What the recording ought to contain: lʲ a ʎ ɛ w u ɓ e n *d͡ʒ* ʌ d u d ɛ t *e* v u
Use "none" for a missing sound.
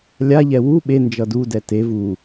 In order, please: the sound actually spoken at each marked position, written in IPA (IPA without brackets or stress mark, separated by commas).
d͡ʒ, e